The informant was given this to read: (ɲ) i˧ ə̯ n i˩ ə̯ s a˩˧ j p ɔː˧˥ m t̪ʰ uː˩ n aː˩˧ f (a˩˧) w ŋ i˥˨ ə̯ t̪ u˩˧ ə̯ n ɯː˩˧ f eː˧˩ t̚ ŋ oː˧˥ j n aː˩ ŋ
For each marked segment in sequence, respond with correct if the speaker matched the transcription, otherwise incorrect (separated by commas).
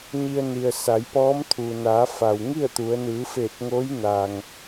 correct, incorrect